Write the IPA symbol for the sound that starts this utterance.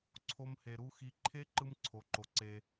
ǀʰ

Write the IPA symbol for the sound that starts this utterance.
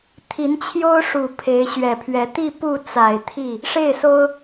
t̪ʰ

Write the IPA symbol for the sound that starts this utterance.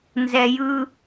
n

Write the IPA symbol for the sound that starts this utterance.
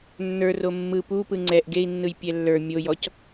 nː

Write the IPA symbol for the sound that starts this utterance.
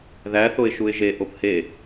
ð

